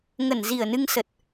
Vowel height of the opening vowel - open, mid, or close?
mid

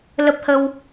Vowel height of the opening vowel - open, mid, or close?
mid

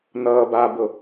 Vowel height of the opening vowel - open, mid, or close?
mid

